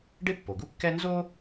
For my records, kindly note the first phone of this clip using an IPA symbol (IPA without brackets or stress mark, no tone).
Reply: ɖ